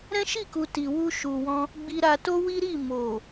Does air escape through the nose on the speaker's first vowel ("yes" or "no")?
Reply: yes